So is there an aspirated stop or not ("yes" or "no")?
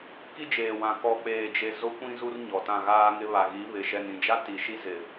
no